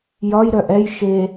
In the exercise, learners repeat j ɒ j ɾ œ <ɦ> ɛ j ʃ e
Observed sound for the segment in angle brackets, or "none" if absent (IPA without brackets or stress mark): ʔ